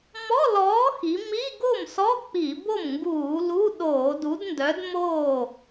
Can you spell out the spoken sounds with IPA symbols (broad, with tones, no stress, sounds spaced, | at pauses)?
m ɔ˧˥˧ l ɔː˨˥ x i˩˧ m i˧˥˧ ɡ o˥˩ m s ɔ˧˥˧ k͡p i˧˩˧ b o˥˩ m ŋ ɡ uː˧˩˧ l u˧˥˧ ɗ oː˧˩˧ d u˨˥ d n d œ˨˥ d m oː˥˩